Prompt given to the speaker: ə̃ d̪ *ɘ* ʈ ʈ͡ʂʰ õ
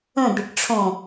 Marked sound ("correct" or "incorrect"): correct